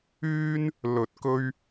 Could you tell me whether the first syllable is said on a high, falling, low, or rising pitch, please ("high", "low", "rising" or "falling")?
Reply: high